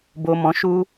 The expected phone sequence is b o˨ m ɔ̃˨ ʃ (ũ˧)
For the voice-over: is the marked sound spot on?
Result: no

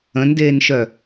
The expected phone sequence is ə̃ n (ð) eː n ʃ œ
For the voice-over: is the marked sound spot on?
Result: no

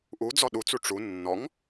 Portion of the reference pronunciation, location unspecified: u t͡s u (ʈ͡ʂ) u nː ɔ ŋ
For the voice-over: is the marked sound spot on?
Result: yes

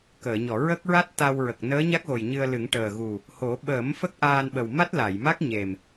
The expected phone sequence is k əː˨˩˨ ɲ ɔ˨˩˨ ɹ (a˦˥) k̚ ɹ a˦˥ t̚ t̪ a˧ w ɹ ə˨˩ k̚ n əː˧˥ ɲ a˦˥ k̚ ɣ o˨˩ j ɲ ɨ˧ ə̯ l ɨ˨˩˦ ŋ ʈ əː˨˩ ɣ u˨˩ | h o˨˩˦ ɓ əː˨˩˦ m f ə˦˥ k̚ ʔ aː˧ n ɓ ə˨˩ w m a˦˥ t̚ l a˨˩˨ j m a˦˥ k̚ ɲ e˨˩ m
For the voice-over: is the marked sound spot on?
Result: no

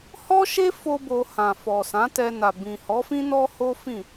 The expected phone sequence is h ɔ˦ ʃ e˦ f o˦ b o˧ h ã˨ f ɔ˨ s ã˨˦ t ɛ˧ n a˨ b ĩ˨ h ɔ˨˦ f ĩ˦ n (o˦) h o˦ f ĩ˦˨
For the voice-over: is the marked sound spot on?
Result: no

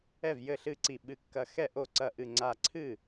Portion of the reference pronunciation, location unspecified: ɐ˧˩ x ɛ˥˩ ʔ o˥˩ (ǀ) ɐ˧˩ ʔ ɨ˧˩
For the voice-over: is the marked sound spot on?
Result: yes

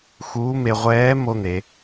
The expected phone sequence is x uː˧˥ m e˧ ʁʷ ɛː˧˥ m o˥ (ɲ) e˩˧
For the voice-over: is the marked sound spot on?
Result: no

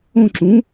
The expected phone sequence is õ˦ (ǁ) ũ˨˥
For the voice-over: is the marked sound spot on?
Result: yes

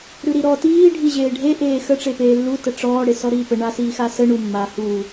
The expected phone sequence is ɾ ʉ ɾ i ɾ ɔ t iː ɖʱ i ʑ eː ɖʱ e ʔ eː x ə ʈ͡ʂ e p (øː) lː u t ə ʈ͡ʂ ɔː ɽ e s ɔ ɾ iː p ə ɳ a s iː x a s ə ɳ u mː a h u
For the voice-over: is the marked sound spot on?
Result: no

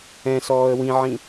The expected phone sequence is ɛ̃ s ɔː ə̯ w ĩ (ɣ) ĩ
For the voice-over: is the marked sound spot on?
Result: no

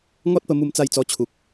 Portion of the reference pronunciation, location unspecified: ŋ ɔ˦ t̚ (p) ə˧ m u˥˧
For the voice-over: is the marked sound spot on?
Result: yes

